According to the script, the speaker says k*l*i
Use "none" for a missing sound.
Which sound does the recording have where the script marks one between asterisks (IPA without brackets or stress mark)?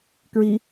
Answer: ɹ